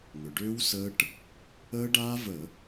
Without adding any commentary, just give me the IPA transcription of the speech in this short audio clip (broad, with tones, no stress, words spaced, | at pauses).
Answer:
ŋʏ˩ɖʏː˦˥w səː˦˥ʈ | əː˦˥ ɖaː˦˥və˧˩˧